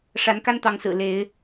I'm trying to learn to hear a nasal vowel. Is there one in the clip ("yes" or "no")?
no